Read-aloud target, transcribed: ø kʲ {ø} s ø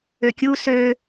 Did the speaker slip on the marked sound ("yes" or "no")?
yes